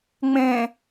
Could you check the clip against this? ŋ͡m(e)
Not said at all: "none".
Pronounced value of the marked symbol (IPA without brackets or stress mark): ẽ